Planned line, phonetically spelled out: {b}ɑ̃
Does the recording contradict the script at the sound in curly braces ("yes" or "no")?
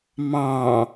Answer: yes